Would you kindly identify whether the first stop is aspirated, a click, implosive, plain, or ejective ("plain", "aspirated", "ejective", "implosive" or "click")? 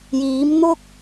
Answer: plain